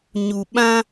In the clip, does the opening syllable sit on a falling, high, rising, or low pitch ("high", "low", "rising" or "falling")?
low